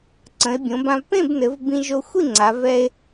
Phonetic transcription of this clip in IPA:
ǀ ə̃˩˧ e̯ bʲ õ˩˧ b ã˧ v p ẽ˥˨ b n ɘ˩˧ v b ĩ˧ ʒ o˧ xʷ i˥˨ ŋ͡ǀ a˩˧ v ɛ˧ e̯

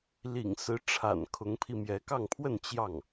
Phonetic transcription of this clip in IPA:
l ḭ˨˩ ŋ s ɹ̩˧˥ ʈ͡ʂʰ a̰˨˩ n kʰ ʊ˧˥ ŋ pʰ i˧ m j ɛ˧˥ k ɑ˥˧ ŋ pʰ w ə˥˧ n t͡ɕ j ɑ˥˩ ŋ

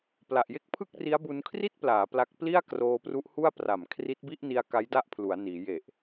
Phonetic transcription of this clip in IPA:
p l a˨˩ ʔ j e˥˩ k̚ pʰ ɯ˥˩ k̚ r i˦˥ a̯ b u˧ n kʰ r i˥˩ t̚ p l aː˩˦ p l a˦˥ k̚ p l i˥˩ a̯ k r oː˧ p r u˦˥ ʔ h u˥˩ a̯ p r a˨˩ m kʰ r i˦˥ t̚ b i˥˩ ʔ n i˧ a̯ k a˦˥ j d a˥˩ ʔ pʰ l u˩˦ a̯ n iː˩˦ j e˨˩ ʔ

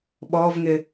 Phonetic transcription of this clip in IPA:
ɓ ɔ v ŋ ɪ

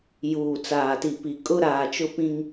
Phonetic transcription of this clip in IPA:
j uː˨ t͡s aː˨ t i˨ p i˨ kʼ ʊ˦ ɾ aː˨ t͡ʃ ʊ˦ p ĩ˦ ŋ

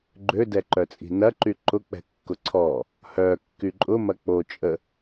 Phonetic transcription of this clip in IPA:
ɡ͡ǃ ø d ɛ ǃ œ t͡sʼ i̤ n ɐ ǃ y ǃ ʊ k͡p ɛ̤ kː ʊ ǀʰ ɔ | h œ kː y ǃʼ ʊ m ɐ k͡p o t͡ʃʼ ə

